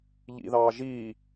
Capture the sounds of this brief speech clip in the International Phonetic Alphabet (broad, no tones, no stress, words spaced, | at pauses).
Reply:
ʎḭðɑː ʒi